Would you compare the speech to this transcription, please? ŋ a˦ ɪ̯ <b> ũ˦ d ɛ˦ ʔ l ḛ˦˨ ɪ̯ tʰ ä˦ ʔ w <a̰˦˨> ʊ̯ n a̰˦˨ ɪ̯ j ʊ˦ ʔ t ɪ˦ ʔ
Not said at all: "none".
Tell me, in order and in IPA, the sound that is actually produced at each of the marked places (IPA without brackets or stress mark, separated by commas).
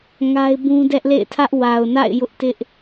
b, a˨